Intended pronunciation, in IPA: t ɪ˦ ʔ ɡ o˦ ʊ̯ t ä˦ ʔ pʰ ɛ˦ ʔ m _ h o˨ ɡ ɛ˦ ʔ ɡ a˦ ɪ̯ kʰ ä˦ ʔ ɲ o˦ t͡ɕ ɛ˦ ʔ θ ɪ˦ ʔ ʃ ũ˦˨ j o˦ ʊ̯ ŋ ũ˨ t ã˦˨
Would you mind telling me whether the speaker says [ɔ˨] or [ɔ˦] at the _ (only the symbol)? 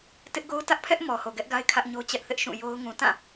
ɔ˨